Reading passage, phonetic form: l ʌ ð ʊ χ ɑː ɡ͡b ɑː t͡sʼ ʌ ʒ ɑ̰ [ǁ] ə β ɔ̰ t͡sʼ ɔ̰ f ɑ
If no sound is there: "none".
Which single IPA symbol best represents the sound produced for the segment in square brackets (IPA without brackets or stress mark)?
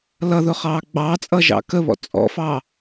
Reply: k